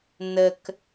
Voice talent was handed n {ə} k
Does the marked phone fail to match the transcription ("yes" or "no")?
no